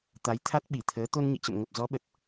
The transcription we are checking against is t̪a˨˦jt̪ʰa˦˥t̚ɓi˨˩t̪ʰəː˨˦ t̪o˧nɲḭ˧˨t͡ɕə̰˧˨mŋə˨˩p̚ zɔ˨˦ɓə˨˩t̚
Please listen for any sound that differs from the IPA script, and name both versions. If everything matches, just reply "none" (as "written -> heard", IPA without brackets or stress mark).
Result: none